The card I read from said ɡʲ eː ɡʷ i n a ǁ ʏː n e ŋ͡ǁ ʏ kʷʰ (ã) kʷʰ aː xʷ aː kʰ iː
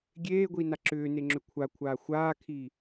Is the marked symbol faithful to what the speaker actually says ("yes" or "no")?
no